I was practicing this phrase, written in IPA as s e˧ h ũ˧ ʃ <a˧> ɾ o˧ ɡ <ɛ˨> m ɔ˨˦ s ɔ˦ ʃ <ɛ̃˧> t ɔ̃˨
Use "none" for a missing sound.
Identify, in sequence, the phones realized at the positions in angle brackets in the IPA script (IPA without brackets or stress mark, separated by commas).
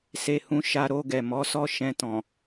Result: a˧, ɛ˨, ɛ̃˧